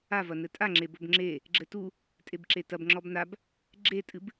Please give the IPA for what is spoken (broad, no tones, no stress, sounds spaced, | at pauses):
a v ɐ n ɘ tʼ a ŋ͡ǁ e b o b ŋ͡ǁ e | ɡ͡ǁ ɘ t u | tʼ e b ǁ e t ɐ b ŋ͡ǁ ɔ b n a b | ɡ͡ǁ e tʼ ɨ b